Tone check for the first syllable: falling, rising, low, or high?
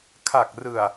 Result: low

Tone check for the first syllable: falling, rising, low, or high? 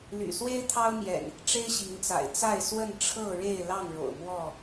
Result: low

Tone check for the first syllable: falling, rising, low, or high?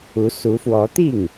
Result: rising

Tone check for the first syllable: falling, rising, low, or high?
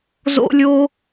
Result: high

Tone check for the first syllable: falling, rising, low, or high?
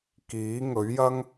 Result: rising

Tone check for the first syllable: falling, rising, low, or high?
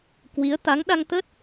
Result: rising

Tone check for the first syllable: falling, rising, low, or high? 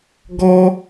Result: high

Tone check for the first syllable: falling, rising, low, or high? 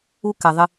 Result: high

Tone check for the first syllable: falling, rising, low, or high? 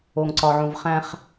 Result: low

